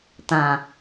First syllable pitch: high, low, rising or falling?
low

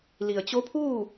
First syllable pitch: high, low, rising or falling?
low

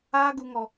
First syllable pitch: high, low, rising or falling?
high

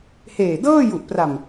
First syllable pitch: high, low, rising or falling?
low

